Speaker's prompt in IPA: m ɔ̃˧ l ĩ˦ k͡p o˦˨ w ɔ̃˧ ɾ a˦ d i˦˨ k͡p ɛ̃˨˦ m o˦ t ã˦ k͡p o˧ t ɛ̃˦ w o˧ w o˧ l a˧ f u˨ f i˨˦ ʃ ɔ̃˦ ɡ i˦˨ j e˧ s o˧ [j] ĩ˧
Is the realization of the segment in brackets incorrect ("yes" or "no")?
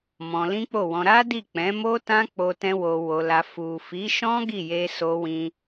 yes